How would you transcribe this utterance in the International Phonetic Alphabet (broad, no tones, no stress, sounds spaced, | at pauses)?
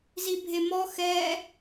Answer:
z i bʱ e m ɔ x ɛ